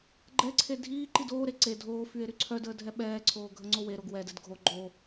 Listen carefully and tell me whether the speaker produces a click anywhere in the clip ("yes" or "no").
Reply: yes